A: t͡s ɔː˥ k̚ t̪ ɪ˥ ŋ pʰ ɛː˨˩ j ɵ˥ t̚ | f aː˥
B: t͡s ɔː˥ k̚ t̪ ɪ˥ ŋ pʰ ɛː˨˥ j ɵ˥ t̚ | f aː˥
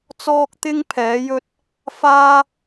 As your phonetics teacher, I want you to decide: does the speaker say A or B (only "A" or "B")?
B